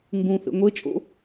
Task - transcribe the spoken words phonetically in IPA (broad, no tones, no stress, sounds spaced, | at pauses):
ŋ ɡ ũ θ ḛ ŋʷ e t͡ʃʼ o̰